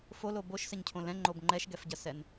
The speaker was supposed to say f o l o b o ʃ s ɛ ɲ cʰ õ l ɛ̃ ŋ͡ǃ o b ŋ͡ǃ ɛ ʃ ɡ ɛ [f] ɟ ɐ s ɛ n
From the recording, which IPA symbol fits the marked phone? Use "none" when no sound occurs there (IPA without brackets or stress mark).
f